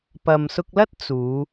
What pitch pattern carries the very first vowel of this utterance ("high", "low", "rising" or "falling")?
low